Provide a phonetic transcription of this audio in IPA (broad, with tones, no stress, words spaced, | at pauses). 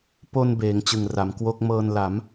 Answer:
po˧n beː˩˦ŋt͡ɕɯ˨˩ŋra˩˦mkwo˥˩k̚ mɤː˧n la˩˦m